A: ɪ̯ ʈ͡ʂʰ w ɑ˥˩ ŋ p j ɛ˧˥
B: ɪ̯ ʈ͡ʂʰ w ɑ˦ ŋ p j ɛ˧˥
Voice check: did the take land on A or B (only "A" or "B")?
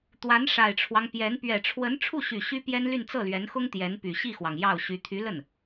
B